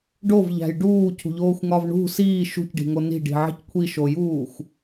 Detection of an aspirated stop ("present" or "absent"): present